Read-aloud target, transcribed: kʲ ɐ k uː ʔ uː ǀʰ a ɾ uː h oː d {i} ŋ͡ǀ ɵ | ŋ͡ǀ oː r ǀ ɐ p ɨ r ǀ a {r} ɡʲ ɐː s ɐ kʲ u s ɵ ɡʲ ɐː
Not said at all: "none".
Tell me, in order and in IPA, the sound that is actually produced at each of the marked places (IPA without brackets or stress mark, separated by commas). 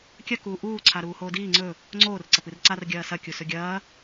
iː, r